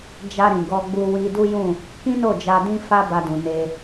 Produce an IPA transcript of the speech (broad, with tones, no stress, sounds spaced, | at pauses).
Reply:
d͡ʒ a˧ ɾ ĩ˨ ɡ ɔ˧ ɡ͡b u˧ w i˧ d u˦ j ũ˦˨ | k ĩ˦ n o˦˨ d͡ʒ a˧ d ĩ˦ f a˦ b a˧ d ũ˨ n e˧